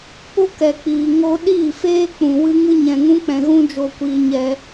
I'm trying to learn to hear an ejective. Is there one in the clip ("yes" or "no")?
no